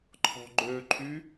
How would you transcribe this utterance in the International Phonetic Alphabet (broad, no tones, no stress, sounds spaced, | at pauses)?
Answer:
ǃʰ ɔ̤ ɡ͡ǃ ø ǃʰ y